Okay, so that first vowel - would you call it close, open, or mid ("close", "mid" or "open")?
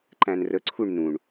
open